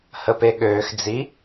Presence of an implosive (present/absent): present